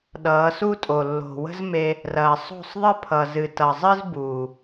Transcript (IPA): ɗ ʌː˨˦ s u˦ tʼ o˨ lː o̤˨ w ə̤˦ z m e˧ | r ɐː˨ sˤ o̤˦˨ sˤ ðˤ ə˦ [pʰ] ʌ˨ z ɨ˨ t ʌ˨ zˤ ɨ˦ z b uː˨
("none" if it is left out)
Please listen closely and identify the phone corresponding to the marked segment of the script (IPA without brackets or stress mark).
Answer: pʰ